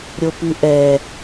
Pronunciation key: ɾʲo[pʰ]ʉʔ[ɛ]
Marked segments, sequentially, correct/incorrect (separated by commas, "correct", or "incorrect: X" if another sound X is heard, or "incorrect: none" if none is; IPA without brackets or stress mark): incorrect: p, correct